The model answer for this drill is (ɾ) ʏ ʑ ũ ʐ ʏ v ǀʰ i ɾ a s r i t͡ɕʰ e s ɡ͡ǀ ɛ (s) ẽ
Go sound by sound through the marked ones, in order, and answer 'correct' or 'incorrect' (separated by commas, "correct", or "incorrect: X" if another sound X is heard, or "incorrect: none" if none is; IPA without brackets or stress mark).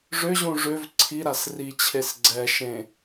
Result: incorrect: ʐ, incorrect: ʃ